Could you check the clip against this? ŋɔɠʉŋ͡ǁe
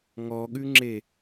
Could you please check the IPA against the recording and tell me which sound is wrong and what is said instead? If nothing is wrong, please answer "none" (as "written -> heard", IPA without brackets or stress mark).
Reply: none